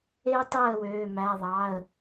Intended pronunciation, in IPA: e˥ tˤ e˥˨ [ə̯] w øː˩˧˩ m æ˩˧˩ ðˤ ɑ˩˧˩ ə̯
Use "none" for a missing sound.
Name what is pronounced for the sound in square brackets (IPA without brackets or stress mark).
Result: ə̯